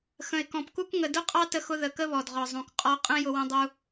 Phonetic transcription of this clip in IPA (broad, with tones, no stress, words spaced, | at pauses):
xə̃˨ɪ̯kɔ̃˨pku˦k ŋə˨dʊ˦qʼɑ˦ tə˦xʊ˦ ðə˨kə˦βɔ˨dʁɔ˨ zˤũ˨kqʼɔ˦ qʼə̃˦ jʊ˦wə̃˦dˤu˦